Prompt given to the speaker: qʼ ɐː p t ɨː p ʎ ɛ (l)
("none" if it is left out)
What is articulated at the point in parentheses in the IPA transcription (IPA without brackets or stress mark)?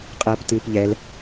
l